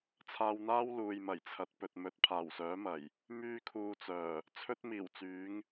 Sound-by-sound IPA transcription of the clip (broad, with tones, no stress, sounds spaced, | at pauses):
t͡sʰ aː˧ w n̪ aː˥ w l uː˨ j m ɐ˨˩ j t͡sʰ ɐ˨˥ t̚ p ɵ˨ t̚ m ɵ˧ t̚ pʰ aː˨˩ w s œː˨˥ m ɐ˨˩ j | m yː˥ kʰ uː˧ t͡s œː˨˩ | t͡sʰ ɵ˥ t̚ m iː˨˩ w t͡s yː˨˥ ŋ